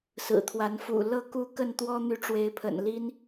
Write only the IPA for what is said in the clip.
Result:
s ɹ̩˨˩ t̪ʰ w a˨˦ n f ṵ˨˩ l ɤ˥˨ k u˥˨ k ə˥˨ n t̪ w ɔ˦ n̪ y˨˦ ʈ͡ʂ w e˨˦ ɪ̯ pʰ ə̰˨˩ n l i˦ n

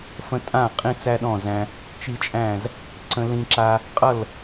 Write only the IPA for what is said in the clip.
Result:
f ə̃˧ tʼ ã˦˨ qʼ ĩ˧ t͡s æ˦ ɗ ɔ̃˦˨ z æ̃˧ | t͡ʃ i˧ t͡ʃʼ æ̃˦˨ z | ǀ ə̃˧ l ĩ˧ ǁ a˧ | qʼ ʌ˦˨ l

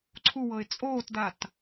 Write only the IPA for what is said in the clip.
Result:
ǀʰ u w ɤ ɪ̯ t͡sʼ oː t d a t

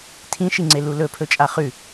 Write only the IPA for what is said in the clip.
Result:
tʰ ĩ ʃ i ŋ͡ǀ e l u l ɵ pʰ ɵ t͡ʃʼ a χ ʉ

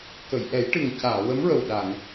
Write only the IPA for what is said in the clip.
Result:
k ə˨˩˨ j ʔ ɛ˨˩˦ j ʈ ɨ˨˩ ŋ c aː˨˩˨ w ə˧˥ m ɹ ə˨˩ w ɗ a˨˩˨ ŋ

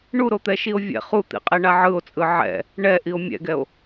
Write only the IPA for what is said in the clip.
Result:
ɳ u ɾ o t̪ ɛ ʃ i o̯ vʲ ɛ̰ χ u t̪ ḭ qʼ e ɳ a ʕ ɯ o̯ t͡sʼ ɯ ʕ ɛ̰ | ɳ ɛ ʔ i o̯ mʲ ɛ̰ ɡ ɛ o̯

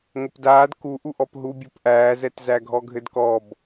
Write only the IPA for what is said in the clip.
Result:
ŋ ə p d aː d k u ʔ u ʔ ɔ p ɦ u bʲ o p ʔ æː z ɛ t z æ ɡʱ ɔ ɡʱ ɘ d k ɔ b

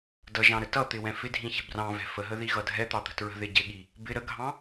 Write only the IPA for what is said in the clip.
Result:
d ʌ ʒ ɑ̃ ɾ ə t ʌ t̪ ɪ w ɛ̃ f ɪ dʱ ĩ ç ɛ̤ b r ɑ̃ v ɛ̤ f ə ɦ ə ð i ɣ ʌ dʱ ɛ t̪ ɑ t̪ ə̤ t ɹ ə̤ ð ɪ ɟ ɪ ɠ i | b ɪ ɾ ə ɡʱ ɑ̃

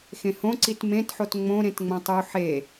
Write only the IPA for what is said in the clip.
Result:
x ẽ h õ ǀ i t m ẽ t ħ o t ŋ͡m õ ɾ ẽ t ŋ͡m õ tˤ u ħ e

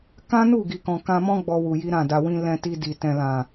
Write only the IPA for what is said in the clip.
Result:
k ã˦ n u˦˨ ɡ i˨ k ɔ̃˨ k ã˧ m ɔ̃˦ ɡ͡b ɔ˧ w u˨ j i˨˦ ɾ ã˦˨ d a˧ w ĩ˦ l ɛ̃˧ t i˧ d i˨ t ɛ̃˨ l ã˨

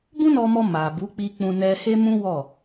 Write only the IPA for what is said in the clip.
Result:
b ũ˦ n ɔ˧ m ɔ˧ m a˨ b u˨˦ k͡p i˧ k͡p ũ˧ n ɛ˧ h e˦ m ũ˦ w ɔ˦˨

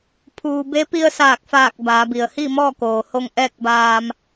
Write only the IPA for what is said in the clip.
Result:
pʰ uː˩ b e˧˥ p i˧ ə̯ s aː˧˩ k̚ f aː˧˩ k̚ b aː˩˧ b i˩ ə̯ h i˥˨ m ɔː˥˨ k oː˩ h o˧ ŋ ʔ ɛː˥˨ k̚ b aː˧ m

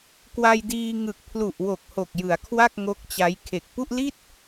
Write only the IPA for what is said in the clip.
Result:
k w a˧ j d iː˧ ŋ ɯ˨˩ k̚ pʰ l u˨˩ ʔ w o˨˩ k̚ h o˨˩ k̚ j ɯ˩˦ a̯ kʰ w a˥˩ k̚ ŋ o˦˥ k̚ t͡ɕ a˦˥ j kʰ e˨˩ k̚ p u˥˩ ʔ l i˥˩ t̚

